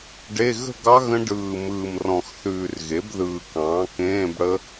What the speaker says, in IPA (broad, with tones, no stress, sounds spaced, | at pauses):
ɖ e˧˥˧ ɣ ə̤˥˧ ɡ ɑ˦˥ ɣ ə̃˦˥ ɖ ɯː˨˩ m ɯː˨˩ m r ɔ̃˨˩ x θ ʉː˨˩ r ɣ e˩˥ b ð ɯː˨˩ k ɑ̃ː˩˥ k ẽː˧˥˧ b ɽ ə˦˥